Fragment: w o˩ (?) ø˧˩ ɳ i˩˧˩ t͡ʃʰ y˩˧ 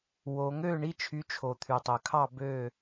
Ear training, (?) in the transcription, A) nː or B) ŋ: B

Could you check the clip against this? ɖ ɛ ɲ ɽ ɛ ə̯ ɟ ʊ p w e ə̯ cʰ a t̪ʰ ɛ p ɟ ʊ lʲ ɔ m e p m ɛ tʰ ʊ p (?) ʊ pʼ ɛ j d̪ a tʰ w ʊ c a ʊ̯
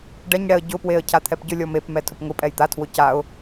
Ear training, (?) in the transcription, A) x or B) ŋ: B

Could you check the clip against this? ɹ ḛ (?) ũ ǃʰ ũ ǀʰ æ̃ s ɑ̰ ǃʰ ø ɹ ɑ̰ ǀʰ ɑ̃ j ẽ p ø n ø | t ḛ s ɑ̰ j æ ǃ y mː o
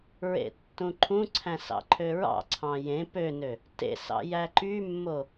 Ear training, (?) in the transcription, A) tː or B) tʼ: A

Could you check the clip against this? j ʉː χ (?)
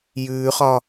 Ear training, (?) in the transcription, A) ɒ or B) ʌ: A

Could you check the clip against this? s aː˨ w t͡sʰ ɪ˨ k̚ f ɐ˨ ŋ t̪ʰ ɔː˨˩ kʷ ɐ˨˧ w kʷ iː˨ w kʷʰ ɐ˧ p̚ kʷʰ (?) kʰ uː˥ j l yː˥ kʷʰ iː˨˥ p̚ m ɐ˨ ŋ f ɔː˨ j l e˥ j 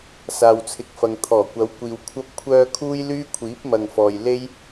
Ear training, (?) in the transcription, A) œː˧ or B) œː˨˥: A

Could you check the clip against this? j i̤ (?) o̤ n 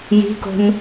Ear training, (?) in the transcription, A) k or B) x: A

